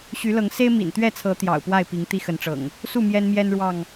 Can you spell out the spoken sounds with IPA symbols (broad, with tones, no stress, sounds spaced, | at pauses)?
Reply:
ɕ y˨˦ l ɤ˨˦ ŋ s e˦ ɪ̯ m ḭ˨˩ n t̪ ɥ ɛ˥˨ t͡sʰ ɤ˨˦ t̪ j ɑ̰˨˩ ʊ̯ p w a˥˨ ɪ̯ p i˨˦ ŋ t̪ i˦ x ə˨˦ n ʈ͡ʂ ɤ̰˨˩ ŋ | s u˥˨ m j ɛ˦ n m j ɛ˦ n ɻ w ɑ˥˨ ŋ